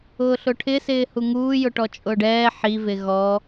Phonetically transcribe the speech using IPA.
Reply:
ʊː ɬ ʊ ʈʰ ɪ s ɪː h u ŋ uː j ʊ ʈ ɔ t͡ʃʼ ʊː ɖ ɛː ħ i v ɪ ɣ ɔ

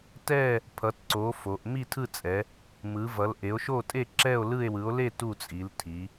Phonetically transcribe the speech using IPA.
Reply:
t ɛ˥˧ | pʰ ʌ˨˦ t ǀ o˨˦ f o˨˦ ʔ m i˥˧ tʰ ɯ˥˧ t͡sʼ ɛ˨˦ | m ɯ˨˦ v ʌ˨˦ l ʔ e˨˦ o̯ ʃ o˥˧ tʼ e˥˧ ǁ ɛ˥˧ o̯ l ɯ˥˧ e̯ w ɯ˨˦ o̯ l e˥˧ t u˥˧ t͡sʼ i˨˦ l tʰ i˨˦

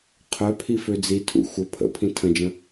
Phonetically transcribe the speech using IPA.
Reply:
qʰ œ pʰ i f ø d͡z i tʰ ṵ xʷ ə pʰ ə̰ pʰ ĩ tʰ ə̃ d͡ʒ ə̃

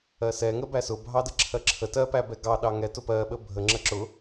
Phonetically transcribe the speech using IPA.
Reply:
ɜ s ɛ ŋ ə b æ s ʊ bʱ ɑ d ə ǁʰ ɜ ǁʰ ə t ɜ p æ b ɛ ɡ ɑ ɗ ɑ ŋ ɛ t ʊ p ɜ ɓ ə bʱ ə ŋ͡ǁ ə ǁ ʊ

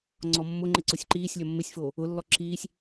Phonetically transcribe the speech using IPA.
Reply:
ŋ͡ǀ ɔ mː ʊ ŋ͡ǃ ɪ ǀ ʊ sʲ ǃ iː sʲ lʲ ɔ mː ɪ sʲ f oː | ʊ lː ɔ ǁ iː sʲ

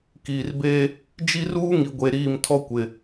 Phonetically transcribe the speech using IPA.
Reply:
k iː˨ r b eː˦ | d͡ʒ i˦ r uː˦ ŋ i˨ ɡʷ e˨ ɾ iː˦˨ m tʰ ɔ˦ kʷ ɪ˨

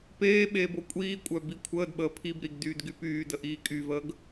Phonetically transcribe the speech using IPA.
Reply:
p eː ɓ eː b o kʷʼ iː kʷʼ œ b i kʷʰ əː d ɓ əː pʰ i b ɾ i ɡ d yː d ɡ y p yː d ə ʔ iː kʼ y v əː ɡ

